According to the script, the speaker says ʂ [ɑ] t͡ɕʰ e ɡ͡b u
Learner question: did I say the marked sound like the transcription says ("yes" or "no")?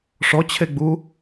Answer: no